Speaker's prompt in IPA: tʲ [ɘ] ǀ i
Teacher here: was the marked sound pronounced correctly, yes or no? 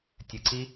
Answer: yes